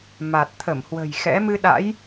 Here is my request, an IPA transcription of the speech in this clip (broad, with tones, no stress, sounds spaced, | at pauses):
m a˨˩ t̚ t̪ʰ ə˧˩ m h w ə̤˨˩ j x ɛ̰˧˥ m ɨ˧ ɗ a̰˧˥ j